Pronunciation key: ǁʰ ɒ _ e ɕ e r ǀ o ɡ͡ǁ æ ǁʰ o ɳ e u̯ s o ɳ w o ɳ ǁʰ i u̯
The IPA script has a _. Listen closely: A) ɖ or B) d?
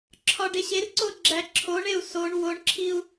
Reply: A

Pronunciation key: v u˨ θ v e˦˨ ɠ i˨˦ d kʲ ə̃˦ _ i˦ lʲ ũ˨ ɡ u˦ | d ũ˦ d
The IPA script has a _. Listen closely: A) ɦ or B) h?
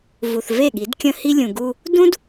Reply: B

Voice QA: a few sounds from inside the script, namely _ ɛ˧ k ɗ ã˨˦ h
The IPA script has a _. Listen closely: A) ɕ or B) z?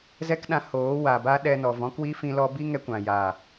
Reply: B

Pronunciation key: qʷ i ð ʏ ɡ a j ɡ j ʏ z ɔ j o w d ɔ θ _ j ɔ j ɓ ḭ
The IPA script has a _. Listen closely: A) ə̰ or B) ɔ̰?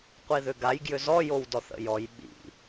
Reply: A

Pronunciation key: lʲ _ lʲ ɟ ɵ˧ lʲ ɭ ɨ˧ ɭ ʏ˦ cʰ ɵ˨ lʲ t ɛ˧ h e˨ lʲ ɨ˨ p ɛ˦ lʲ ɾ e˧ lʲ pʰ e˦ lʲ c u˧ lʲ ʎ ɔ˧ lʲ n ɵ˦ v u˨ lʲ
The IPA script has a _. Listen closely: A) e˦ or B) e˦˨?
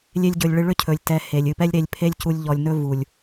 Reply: A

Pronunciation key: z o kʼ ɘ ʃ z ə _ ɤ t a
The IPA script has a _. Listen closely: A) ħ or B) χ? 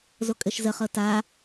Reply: B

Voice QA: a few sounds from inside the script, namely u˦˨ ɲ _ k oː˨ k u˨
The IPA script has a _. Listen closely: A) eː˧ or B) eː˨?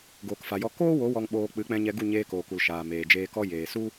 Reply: A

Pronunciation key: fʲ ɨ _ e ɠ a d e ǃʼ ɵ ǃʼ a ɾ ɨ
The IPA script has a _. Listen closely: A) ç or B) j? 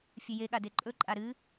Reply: B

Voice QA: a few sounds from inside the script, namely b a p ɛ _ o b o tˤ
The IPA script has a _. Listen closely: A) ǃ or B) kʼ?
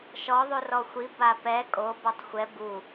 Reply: B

